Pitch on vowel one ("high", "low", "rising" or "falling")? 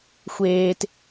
low